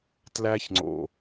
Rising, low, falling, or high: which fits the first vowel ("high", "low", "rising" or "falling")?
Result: high